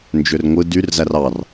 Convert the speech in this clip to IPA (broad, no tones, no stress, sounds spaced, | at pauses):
n d͡ʒ ø r ŋʷ ɯ d y r z æ r ɑ r